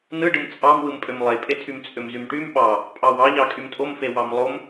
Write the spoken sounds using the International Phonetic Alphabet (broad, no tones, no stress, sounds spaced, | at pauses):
n ɯ ɖ ɯ m t͡sʼ ɑ m w ɯ m pʼ ø m lˠ e pʼ e tʰ y m t͡sʼ ø m z y m ʈ y m ɓ ɑ | pʼ ɑ w ɑ ʎ ɑ kʼ y m tʼ o m f e w ɑ m lˠ o m